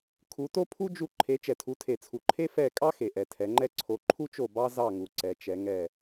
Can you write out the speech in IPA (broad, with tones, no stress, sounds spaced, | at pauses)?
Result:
kʰ u˨˦ t o˥ pʰ u˥ d͡ʒ u˦˨ ǃʰ e˨˦ t͡ʃ ɛ˨ tʰ u˨˦ tʰ e˨ t͡sʰ u˨ ǃʰ e˥ f ɛ˦˨ kʼ ɑ˥ x e˨ ʔ ɛ˨ tʰ ɛ˨˦ ŋ͡ǃ ɛ˥ ǀʰ o˨˦ ǃʰ u˥ t͡ʃ o˦˨ b ɑ˥ z ɑ˦˨ ŋ u˨ ǀ ɛ˨˦ t͡ʃ ɛ˨˦ ŋ ɛ˦˨